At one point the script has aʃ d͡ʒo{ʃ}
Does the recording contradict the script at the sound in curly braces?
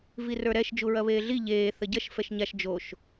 no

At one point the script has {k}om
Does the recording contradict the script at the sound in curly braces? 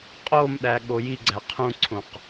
yes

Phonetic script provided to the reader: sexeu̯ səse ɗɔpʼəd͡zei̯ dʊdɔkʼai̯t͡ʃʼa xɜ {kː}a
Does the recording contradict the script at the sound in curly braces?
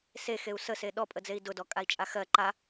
yes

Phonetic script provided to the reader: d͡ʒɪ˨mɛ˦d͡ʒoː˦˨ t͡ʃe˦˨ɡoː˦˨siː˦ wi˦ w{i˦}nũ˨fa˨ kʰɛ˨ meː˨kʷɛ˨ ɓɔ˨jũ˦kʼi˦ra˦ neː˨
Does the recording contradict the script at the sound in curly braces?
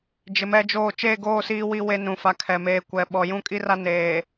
yes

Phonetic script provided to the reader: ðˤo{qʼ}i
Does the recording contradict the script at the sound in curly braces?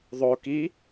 yes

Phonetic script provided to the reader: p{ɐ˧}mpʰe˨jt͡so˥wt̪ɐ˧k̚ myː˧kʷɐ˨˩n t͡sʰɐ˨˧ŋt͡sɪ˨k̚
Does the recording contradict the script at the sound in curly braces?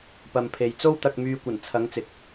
yes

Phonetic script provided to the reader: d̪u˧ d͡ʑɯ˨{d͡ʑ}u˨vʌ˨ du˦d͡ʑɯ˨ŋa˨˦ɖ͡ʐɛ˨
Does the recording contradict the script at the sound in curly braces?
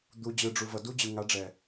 yes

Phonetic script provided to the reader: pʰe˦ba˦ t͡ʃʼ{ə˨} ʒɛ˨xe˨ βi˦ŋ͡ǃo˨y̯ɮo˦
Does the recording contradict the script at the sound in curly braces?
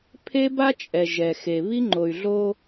yes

